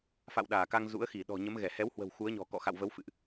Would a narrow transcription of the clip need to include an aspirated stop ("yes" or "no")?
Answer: no